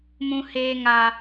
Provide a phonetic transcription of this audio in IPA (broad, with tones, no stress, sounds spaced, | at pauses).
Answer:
m ũ˧ h eː˧ ŋ a˨